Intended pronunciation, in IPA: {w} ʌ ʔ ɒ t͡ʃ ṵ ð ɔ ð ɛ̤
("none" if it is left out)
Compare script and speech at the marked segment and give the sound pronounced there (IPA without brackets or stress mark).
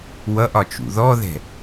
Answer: w